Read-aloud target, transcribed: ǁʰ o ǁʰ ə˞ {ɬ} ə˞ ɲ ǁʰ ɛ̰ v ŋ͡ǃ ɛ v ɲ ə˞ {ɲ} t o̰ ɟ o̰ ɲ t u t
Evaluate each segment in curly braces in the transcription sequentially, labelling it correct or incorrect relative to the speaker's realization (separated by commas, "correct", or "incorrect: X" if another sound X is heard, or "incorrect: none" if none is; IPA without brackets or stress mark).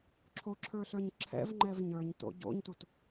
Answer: correct, correct